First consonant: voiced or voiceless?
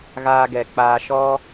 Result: voiced